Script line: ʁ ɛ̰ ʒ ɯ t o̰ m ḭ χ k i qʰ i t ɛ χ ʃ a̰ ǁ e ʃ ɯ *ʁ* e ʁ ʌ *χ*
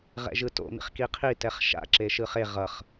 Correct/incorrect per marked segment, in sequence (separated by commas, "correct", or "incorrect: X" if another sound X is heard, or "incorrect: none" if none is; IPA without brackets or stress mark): incorrect: χ, correct